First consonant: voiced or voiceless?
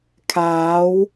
voiceless